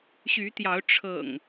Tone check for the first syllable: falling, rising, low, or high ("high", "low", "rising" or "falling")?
rising